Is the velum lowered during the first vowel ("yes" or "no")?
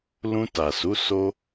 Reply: yes